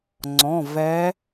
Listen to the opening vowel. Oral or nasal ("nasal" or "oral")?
nasal